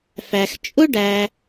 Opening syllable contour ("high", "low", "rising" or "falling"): low